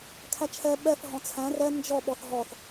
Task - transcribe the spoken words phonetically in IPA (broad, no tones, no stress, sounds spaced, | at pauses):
kʰ æ t͡ʃʰ ɛ ɓ ɛ f ɦ ɔ̃ t͡sʰ æ̃ r ɛ n d͡ʒ ɔ ɓ ɔ θ ɦ ɔ θ